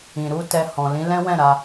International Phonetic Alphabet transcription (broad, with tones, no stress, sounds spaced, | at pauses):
ĩ˨ ɾ u˧ t ɛ˧ h ɔ̃˨ l ĩ˨˦ l ɛ̃˦ w ɛ̃˦˨ ɾ a˧